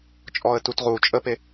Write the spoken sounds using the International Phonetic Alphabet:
t͡ʃʼɔə̯tutʁu t͡ʃʼəpe

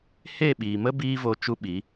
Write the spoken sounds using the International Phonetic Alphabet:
he˦˨ɓiː˨mə˦ biː˦vo˧ t͡ʃu˦ɓi˨˦

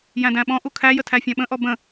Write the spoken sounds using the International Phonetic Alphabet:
jæ̃dæ̃ɓɔ̃ʔu kʰæjə tʰæfʲæ̃ɓə̃ʔɔ bə̃

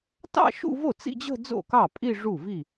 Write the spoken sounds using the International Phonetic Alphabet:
tɑ̰˥˧ʃṵ˥˧vo˥˩ t͡sḭ˥˧d͡ʑə̤˥˧ d͡zo̰˥˩kɑ˥˩ pʼi˥˧ ʐu˥˩vi˥˩

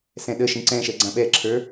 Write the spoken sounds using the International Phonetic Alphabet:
sɛ̃ɗəʃĩ ǀɛ̃ ʃɛɡ͡ǀãɓɛǁʰə˞

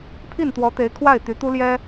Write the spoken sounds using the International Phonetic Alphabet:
pʰi˥˩nt̪wɔ˧˥t̪e˧˥ɪ̯kʰwa˥˩ɪ̯ t̪y˧˥t̪u˥ljɛ˥

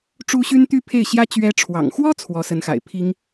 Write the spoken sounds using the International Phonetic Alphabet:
ʈ͡ʂu˥ɕy˥n t̪y˥pʰe˥˩ɪ̯ɕjä˥ t͡ɕɥɛ˧˥ʈ͡ʂʰwɑ̰˨˩ŋxwɔ˥ t͡sʰwɔ˧˥sə˧˥nxa̰˨˩ɪ̯pʰi˥ŋ

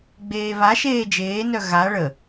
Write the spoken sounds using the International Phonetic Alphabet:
ɡ͡beːβaʃeː d͡ʒeːnœ ɣa ɭə

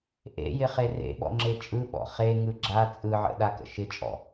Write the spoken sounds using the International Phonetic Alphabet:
ʔḛjɪχe rḛɓɔ̰ŋ͡ǁe t͡ʃʼɯɓɔ̰ χeŋɯ ɡ͡ǁa t͡sʼɯʕə̰ɗakə̰ ʃɪt͡ʃʼɔ̰

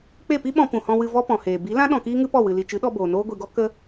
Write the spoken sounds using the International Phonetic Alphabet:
k͡pe˦˨pi˦ɓɔ̃˧ pũ˨hɔ̃˧wɨ˧ vɔ˦pɔ̃˨heː˨ bi˨˦lã˦ ɗɔ̃˧kiː˦ŋɨ˦ pɔ˦˨wɨ˨ li˨ t͡ʃɨ˨˦ɗɔ˧ boː˨noː˦ɡʷi˧ɡɔ˦ kə˧

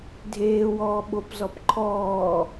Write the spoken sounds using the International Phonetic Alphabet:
dʱeːwɔːɓopzɔp ǃʰɔː

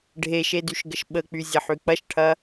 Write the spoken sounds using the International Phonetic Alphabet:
ɖʱeʃedyʃɡəʃ ɓək͡pyzʲɐħy k͡pɐʃʈʰɐ

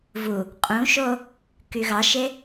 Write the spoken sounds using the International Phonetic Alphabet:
vu | qʼũʃo | kyɣɑʃe

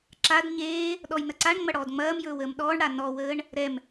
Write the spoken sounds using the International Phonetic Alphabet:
ǁad ɲeː | ɗɔjnɐǀaɳŋ͡mɐ ɽɔːdŋ͡mɐːmjɵːw əːmɗɔːɳɽa nɔwəːɳ | ɾɛm

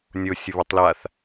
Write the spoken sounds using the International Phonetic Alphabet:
nʲo sʲəβotˤlaθ

